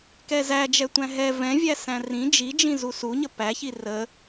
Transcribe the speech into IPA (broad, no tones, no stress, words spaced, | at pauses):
kɛzæd͡ʒɛ tʷæ̃ɦɛ vɛ̃vʲæ sæ̃rĩ d͡ʒid͡ʒĩ zusuɲə pæçi rə